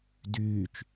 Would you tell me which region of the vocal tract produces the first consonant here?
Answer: tongue tip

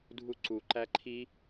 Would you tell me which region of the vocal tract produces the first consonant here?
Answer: tongue tip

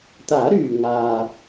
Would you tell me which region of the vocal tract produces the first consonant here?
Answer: tongue tip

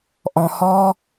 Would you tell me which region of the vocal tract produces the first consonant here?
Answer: throat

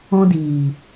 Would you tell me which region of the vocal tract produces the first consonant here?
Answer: tongue tip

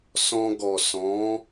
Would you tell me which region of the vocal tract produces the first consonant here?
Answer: tongue tip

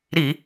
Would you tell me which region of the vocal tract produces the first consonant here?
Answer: tongue tip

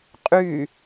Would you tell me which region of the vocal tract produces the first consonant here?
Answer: uvula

